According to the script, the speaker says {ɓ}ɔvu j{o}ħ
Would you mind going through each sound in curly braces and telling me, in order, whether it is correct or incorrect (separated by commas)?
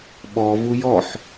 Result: correct, incorrect